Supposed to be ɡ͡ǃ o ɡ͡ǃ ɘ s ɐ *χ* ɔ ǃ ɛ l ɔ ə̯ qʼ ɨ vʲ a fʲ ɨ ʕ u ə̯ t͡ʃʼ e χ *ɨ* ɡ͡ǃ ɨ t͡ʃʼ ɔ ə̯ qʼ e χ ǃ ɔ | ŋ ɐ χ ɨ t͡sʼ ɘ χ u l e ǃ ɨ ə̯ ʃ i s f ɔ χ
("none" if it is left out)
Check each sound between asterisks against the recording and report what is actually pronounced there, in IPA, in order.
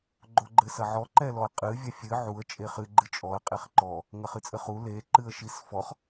ʕ, ɨ

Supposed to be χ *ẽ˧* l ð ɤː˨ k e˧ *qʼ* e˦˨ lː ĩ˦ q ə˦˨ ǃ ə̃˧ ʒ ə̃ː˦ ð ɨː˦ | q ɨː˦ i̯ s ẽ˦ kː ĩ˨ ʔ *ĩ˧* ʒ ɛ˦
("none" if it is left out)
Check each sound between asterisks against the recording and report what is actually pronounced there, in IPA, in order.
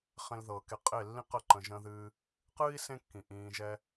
ẽ˧, qʼ, ĩː˧

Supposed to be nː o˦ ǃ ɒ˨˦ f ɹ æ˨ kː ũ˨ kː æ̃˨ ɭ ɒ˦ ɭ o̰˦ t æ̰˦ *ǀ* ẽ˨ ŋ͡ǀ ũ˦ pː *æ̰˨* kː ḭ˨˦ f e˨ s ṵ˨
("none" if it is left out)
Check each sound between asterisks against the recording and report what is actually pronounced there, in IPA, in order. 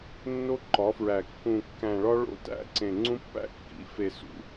ǀ, æ̰˦

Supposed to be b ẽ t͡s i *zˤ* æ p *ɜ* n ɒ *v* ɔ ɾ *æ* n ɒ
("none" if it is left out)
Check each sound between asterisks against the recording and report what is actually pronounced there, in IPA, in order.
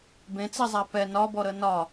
zˤ, ɛ, b, ə

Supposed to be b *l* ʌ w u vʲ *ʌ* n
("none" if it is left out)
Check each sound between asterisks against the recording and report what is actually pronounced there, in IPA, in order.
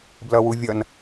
l, ʌ

